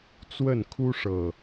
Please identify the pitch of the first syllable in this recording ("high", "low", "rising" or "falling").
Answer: falling